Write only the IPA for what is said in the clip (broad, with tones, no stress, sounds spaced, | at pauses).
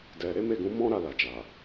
d ɛ˨ ɾ e˨˦ m e˦˨ ɡ ũ˨˦ m ɔ̃˦ ɾ a˦˨ l a˨ d͡ʒ a˨